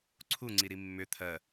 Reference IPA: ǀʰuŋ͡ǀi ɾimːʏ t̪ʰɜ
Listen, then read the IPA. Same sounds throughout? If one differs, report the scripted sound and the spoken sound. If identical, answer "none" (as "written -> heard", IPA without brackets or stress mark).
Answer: none